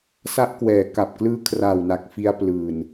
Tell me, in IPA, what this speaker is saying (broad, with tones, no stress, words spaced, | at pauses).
sa˦˥ʔkwɛː˩˦ ka˨˩p̚klɯː˦˥kʰra˨˩wna˨˩k̚ fi˦˥a̯plɯː˨˩n